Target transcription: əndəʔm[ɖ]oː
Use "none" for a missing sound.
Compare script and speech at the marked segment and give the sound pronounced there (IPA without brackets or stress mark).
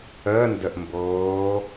b